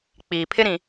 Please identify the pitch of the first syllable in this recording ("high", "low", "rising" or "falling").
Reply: low